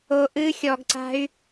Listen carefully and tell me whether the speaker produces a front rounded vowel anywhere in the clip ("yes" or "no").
yes